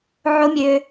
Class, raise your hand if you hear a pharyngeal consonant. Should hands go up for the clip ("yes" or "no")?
yes